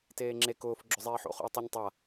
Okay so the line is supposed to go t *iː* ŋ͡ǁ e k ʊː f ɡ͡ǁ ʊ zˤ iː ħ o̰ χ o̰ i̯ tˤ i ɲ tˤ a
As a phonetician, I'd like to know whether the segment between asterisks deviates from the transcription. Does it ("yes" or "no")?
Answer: yes